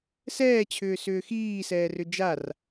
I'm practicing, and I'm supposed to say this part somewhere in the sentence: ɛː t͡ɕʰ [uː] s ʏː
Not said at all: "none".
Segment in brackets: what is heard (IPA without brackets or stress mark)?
ʏː